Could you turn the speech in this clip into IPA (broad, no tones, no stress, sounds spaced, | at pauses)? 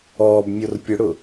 ɔː b mʲ o r pʲ ʊ ɽ ʊ